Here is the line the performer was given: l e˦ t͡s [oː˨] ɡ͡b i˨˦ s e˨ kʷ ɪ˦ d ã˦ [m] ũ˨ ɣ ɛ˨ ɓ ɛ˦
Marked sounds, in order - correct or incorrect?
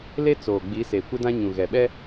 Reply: correct, incorrect: ɲ

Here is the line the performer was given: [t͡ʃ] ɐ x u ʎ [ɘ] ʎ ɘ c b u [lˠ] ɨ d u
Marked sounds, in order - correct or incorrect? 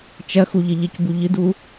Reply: correct, correct, incorrect: ʎ

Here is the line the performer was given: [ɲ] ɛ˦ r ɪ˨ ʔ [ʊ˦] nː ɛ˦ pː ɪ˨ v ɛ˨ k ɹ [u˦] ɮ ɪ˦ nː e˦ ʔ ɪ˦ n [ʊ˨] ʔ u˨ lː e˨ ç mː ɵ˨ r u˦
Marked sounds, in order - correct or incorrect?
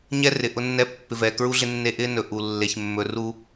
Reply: correct, correct, correct, incorrect: ɵ˨

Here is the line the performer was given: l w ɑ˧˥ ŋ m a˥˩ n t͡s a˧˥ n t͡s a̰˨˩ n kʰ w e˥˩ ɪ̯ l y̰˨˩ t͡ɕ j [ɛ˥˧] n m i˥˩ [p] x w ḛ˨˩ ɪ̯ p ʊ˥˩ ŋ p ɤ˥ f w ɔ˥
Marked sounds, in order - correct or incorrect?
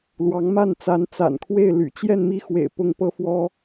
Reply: correct, incorrect: none

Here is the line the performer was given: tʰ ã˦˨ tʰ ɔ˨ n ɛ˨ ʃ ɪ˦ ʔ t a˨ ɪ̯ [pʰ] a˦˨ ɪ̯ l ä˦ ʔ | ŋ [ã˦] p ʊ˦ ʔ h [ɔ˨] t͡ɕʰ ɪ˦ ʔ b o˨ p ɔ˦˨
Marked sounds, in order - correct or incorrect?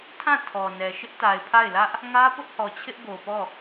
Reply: correct, incorrect: ä˦, correct

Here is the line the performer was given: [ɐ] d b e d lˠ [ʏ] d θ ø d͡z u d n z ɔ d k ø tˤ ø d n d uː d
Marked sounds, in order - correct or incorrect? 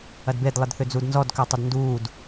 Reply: correct, incorrect: ɪ

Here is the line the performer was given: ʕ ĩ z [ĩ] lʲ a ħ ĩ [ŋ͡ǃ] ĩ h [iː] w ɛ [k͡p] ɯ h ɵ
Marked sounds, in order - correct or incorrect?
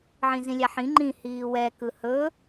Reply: correct, correct, correct, incorrect: k

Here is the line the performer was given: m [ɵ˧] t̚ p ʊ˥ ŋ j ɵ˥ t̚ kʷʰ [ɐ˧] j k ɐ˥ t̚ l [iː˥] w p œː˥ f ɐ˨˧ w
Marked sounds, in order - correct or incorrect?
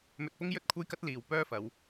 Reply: correct, incorrect: ɐ˥, incorrect: iː˨˩

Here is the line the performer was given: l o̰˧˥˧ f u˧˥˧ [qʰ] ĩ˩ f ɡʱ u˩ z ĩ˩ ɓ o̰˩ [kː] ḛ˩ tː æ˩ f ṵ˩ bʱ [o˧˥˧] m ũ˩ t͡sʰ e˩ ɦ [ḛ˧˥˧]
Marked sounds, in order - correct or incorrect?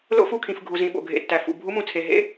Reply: incorrect: kʰ, incorrect: ɡʱ, incorrect: u˧˥˧, correct

